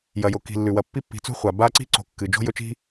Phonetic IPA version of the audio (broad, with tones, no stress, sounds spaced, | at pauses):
j ɐ˩ j o˩ k i̤˩ lː ʉ˩ w ɐ˨ pː i˥ pː i̤˨ t͡s ṳ˥ χʷ a˩ b a˦ ǀ i̤˥ ǀ o̤˨ kː ɨ˩ d͡ʒ o̤˥ j ɵ˦ t͡ʃ i̤˥